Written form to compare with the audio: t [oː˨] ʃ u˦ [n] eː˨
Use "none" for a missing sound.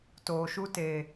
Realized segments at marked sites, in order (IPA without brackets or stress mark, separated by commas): oː˨, t